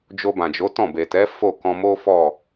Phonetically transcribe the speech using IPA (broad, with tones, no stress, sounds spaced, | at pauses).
d͡ʒ o˧ b ã˨ d͡ʒ o˨˦ t ɔ̃˦˨ b e˨ t ɛ˨˦ f o˦˨ k ɔ̃˧ m o˦ f ɔ˦˨